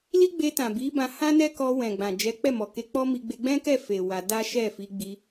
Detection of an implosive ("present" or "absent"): absent